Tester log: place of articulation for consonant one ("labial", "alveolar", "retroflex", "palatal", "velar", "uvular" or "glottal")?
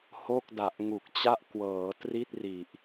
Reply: glottal